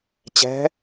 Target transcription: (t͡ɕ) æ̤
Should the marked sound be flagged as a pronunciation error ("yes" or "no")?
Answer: no